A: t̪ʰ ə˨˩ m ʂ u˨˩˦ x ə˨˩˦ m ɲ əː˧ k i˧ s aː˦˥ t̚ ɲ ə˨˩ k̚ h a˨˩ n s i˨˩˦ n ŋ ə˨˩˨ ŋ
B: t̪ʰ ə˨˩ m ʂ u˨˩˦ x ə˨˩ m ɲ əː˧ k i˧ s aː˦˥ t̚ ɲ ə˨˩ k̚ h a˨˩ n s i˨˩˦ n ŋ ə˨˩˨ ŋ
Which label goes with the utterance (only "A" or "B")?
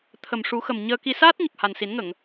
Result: B